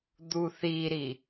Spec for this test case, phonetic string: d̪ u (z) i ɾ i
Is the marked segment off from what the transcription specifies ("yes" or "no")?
yes